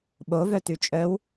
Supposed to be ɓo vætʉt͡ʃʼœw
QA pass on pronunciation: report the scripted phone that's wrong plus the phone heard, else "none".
æ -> œ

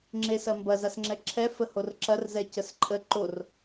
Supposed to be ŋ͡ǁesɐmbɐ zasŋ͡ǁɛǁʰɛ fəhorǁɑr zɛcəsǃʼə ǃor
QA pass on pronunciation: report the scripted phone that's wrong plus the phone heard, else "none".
ɑ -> ɐ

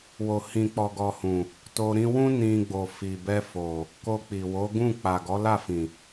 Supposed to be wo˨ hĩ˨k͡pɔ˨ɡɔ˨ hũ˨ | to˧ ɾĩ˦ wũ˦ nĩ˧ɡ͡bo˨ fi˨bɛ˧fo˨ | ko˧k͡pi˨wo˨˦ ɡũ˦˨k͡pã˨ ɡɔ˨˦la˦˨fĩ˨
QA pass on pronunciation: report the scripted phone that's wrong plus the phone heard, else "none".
ã˨ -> a˨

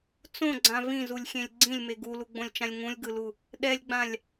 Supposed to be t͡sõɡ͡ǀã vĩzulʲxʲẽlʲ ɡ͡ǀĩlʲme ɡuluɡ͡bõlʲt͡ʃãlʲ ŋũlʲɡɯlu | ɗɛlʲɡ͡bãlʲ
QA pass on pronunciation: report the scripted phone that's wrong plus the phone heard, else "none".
none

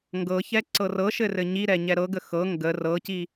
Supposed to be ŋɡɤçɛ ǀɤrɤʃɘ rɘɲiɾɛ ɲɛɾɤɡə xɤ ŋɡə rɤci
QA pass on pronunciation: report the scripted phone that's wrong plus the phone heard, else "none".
none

